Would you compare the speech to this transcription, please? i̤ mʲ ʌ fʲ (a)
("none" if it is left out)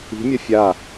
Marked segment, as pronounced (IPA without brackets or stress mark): a